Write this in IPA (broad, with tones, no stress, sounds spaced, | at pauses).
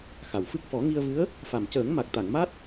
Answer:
x a˨˩ w f ɨ˦˥ k̚ f ɔ˨˩˦ ŋ i˧ ə̯ v ɨ˧˥ ə̯ | f a˨˩ m c əː˨˩˦ ŋ m a˨˩ k̚ t̪ a˨˩˨ ŋ m a˦˥ t̚